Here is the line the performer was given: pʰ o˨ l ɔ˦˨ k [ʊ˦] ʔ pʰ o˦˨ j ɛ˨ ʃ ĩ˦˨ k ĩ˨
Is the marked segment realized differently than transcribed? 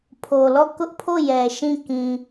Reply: no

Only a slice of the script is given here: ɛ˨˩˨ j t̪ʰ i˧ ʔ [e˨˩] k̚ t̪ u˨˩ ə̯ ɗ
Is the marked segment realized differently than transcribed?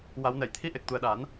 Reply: no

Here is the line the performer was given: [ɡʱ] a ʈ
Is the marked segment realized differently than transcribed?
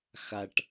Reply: yes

